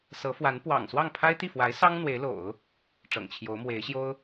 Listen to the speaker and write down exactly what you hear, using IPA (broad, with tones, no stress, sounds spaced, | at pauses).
s ɤ˧˥ f w a˧˥ n p w ɑ̰˨˩ ŋ s w ɑ˥˩ ŋ pʰ a˥ ɪ̯ t̪ i˥˩ f w a˧˥ ɪ̯ s ɑ˥ ŋ n̪ w e˧˥ ɪ̯ l o̰˨˩˦ ʊ̯ | ʈ͡ʂ ɤ̰˨˩ ŋ t͡ɕʰ j o˧˥ ʊ̯ m w e˧˥ ɪ̯ ɕ j o˥ ʊ̯